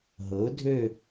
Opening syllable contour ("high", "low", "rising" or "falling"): rising